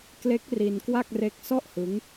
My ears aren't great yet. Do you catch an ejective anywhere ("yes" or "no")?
no